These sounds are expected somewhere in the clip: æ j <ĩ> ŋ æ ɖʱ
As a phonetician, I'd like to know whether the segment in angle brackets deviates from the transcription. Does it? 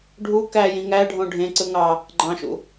no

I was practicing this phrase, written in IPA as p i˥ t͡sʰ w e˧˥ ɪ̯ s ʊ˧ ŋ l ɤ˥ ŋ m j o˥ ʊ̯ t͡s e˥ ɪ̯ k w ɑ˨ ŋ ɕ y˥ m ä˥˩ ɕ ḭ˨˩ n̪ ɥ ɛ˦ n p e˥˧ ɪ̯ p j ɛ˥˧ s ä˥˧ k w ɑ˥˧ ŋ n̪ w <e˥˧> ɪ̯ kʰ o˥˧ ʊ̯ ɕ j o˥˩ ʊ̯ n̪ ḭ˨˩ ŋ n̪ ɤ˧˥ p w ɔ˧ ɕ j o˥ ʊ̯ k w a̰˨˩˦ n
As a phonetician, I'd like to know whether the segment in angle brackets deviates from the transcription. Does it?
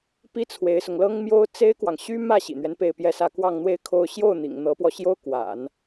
no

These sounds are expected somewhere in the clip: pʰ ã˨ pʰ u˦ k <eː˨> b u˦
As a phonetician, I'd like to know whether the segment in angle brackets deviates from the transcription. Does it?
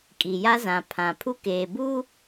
no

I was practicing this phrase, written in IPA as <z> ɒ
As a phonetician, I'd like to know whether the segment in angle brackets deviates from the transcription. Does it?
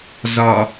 no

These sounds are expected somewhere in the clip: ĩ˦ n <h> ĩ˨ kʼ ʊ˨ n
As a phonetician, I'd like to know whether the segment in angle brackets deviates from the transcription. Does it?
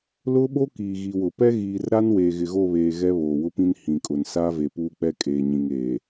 no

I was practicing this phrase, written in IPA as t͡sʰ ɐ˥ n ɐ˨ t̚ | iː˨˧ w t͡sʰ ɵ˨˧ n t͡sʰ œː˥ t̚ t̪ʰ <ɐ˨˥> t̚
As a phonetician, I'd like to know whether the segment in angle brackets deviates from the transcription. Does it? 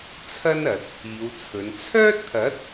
no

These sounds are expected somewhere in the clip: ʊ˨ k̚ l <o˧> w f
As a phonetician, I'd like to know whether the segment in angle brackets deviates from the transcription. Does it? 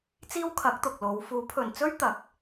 yes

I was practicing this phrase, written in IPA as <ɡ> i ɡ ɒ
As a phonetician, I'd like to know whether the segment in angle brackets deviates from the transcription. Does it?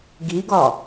no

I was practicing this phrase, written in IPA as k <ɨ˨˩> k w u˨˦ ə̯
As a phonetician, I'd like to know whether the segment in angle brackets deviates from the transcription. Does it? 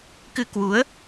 yes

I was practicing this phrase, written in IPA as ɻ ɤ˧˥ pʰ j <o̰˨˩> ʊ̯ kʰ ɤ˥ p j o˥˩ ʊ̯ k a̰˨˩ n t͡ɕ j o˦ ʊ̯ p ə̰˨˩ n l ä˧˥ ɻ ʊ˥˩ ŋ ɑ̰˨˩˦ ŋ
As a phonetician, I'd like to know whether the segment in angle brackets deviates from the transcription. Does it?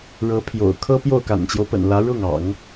no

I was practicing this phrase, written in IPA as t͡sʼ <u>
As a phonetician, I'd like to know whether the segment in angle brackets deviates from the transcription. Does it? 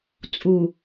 no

